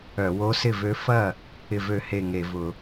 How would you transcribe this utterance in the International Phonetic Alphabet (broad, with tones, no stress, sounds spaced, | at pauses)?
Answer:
œ˧˩˧ w o˧˥ s ɪ˥˩ v ø˧˥ f ɐ˥˩ | ɪ˥˩ v ø˥˩ h e˥˩ ŋ e˧˩˧ v ʊ˧˩˧